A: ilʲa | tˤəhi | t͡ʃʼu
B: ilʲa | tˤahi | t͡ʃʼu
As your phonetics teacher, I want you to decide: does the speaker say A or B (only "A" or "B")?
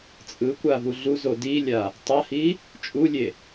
B